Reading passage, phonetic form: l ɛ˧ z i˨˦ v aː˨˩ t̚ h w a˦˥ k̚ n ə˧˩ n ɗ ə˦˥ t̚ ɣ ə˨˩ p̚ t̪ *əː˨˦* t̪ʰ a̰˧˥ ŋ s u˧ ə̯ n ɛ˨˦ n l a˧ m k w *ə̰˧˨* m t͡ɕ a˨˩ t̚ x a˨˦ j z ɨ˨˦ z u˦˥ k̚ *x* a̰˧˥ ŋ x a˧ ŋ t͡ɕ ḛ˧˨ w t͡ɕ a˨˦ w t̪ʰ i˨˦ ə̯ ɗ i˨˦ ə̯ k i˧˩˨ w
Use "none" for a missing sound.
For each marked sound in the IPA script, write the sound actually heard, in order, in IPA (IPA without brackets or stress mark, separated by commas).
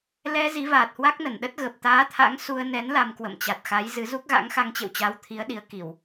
aː˨˦, ə̰˧˨, ɣ